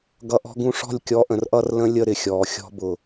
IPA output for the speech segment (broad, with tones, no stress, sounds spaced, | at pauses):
ɡ ʌ˧ ʔ ɔ̤˦ ɡ ũ˧ ʂ ɔ̤˦˨ lʲ kʲ ɔ˨˦ ʔ ə̃˨ r ʔ ʌ˦˨ r l ə̃˦ lʲ ə˦˨ ɾ ɪ˨ xʲ ɔː˨ xʲ ɔ̤˧ b ʊ˨